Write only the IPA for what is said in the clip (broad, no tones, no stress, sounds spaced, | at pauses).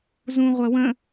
z ũ ʁʷ ɜ w ə̃